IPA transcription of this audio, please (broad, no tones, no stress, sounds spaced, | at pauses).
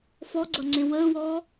f ɔ ɡ͡ǀ ʌ ŋ͡ǀ ẽ w əː w ɔː